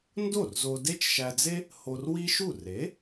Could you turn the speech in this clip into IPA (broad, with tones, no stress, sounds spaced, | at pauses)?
n d o˥˩ r z o˧ d e˥ t͡ʃ ʃ æ˧ d͡z e˥ | h o˧ r w i˥ ʃ u˥˩ r e˩˥